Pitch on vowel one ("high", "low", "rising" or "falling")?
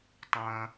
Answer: high